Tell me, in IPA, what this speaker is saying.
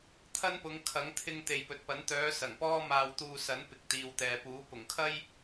t̪ʰɐ˥npʊ˨˧ŋ kʰɐ˨˥ŋt̪ʰɪ˧ŋ t̪e˨jpɵ˨t̚pɐ˨˥n t̪œː˨˧ sɐ˨˩ŋpɔː˥maː˧w t̪uː˧sɐ˨˥n pɪ˨k̚t̪iː˨wt̪ɛː˨puː˨˥ pʊ˨˩ŋkʰɐ˥j

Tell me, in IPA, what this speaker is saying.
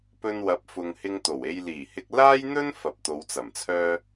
pɵ˧nwɐ˨˥p̚fʊ˨ŋhɪ˧ŋ t̪o˨˩we˧j liː˨˩hɪ˧k̚ laː˥jn̪ɵ˥n fɐ˨p̚t̪o˨˧wt͡sɐ˨˩mt͡sʰœː˥

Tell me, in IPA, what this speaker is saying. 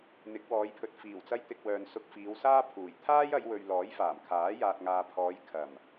n̪ɪ˨˥k̚wɔː˨˧jpʰɵ˨t̚ fiː˨˩wt͡sɐ˧jt̪ɪ˨k̚ wœː˨nsʊ˧k̚fiː˨˧wsaː˥ pʰuː˨˩j t̪ʰaː˥jɐ˨˧jwɵ˨ɥ lɔː˨˥jfaː˨˩m kʰaː˨˥ jaː˨t̚ŋaː˨pʰɔː˨˧j kʰɐ˨˩m

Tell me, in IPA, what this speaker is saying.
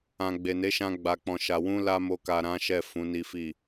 ã˨ɡ͡be˨ne˨˦ʃã˧ ɡ͡ba˨k͡pɔ̃˨ʃa˨ wũ˧la˧ mo˧ka˨ɾã˨˦ ʃɛ˦˨fũ˨˦ni˦fi˦˨

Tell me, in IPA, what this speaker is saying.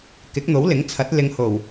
kɪ˨˥k̚n̪o˨˥wlɪ˨˥ŋt͡sʰɐ˨˥t̚ lɪ˨˧ŋho˨˩w

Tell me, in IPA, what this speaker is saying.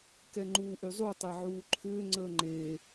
kɛŋ͡ǃuːʔyzˤu tˤaʕuːǃʰʏː ŋ͡ǀəːŋ͡ǃe

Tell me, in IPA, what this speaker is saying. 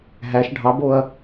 ɦæʃ ɖʱɑboɐ̯

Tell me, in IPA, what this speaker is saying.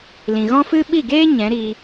lĩ˨ɣɔ̃˦fɨ˦ ɓi˦˨ɡeː˦ ɲɛ̃˨˦ɾiː˧

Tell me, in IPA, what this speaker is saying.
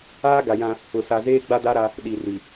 aː˦ɡa˨ jã˦ | ʊ˨sa˨zeː˦ ɡ͡ba˦da˦ɾa˦ | ɗi˨ri˨

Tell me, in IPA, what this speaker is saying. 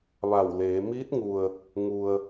ʋa˧˩wleː˩˧ miː˧˥t̚ŋu˩ə̯ | ŋu˩ə̯

